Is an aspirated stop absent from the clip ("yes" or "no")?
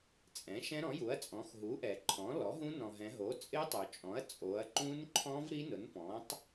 no